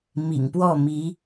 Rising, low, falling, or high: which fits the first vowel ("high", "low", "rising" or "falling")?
low